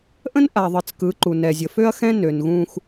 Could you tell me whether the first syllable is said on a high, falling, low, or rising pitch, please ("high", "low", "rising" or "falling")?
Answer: high